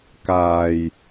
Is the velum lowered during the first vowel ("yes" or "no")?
no